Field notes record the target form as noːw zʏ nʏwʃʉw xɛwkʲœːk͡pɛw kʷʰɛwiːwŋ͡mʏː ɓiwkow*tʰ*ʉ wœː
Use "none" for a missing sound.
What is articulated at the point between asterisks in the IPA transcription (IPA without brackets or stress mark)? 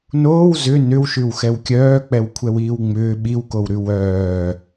ɾ